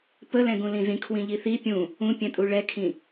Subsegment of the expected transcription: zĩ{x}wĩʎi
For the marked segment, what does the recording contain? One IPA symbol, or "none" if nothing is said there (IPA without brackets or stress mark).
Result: kʰ